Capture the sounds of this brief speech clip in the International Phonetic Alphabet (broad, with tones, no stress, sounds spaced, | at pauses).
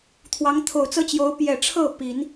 t̪ʰ w ɑ˧˥ ŋ t̪ʰ o˨˩ ʊ̯ t͡s ɤ˥ t͡ɕ j o˧˥ ʊ̯ p j ɛ˨˩ ʈ͡ʂʰ ɤ˥˩ p i˨˩˦ n